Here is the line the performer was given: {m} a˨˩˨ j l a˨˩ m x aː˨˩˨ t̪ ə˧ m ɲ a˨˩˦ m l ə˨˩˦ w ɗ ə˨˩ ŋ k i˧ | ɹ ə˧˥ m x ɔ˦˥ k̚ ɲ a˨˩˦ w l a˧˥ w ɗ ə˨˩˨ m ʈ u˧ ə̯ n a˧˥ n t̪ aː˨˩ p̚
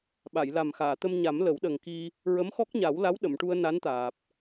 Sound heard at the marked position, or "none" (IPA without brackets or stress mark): ɓ